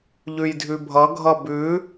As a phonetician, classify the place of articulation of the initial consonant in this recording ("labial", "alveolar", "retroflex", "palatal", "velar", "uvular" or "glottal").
palatal